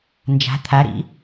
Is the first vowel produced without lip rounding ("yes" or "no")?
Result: yes